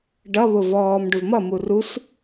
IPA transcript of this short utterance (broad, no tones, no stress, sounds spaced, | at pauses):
ɖ ʌ β ʊ v ɔː m ɖ ʊ v m ʌ m u r u s